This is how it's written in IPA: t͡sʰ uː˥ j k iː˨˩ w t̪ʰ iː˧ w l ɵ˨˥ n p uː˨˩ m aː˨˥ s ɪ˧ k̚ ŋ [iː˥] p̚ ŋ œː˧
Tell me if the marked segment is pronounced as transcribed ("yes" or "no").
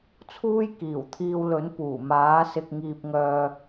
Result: no